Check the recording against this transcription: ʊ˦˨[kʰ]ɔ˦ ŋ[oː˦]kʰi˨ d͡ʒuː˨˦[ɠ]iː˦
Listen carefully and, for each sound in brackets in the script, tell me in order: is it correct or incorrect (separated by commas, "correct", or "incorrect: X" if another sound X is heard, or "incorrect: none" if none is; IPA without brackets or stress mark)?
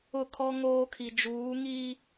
correct, correct, incorrect: ŋ